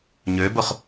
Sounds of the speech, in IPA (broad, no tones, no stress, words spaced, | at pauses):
ɲøbʊχ